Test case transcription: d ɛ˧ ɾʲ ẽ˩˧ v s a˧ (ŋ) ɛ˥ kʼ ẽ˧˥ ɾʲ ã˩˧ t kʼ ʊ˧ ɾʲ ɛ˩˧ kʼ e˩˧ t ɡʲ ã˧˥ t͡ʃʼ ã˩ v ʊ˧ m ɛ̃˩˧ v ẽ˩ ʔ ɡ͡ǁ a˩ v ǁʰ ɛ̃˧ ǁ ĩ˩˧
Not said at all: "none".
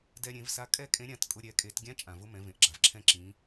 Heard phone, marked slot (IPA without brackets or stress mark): kʼ